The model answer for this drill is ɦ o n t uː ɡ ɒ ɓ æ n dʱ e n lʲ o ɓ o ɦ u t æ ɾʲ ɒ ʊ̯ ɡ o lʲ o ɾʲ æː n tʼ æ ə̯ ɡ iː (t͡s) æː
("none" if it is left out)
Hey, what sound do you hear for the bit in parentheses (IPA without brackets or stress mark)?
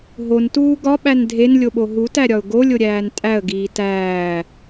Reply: t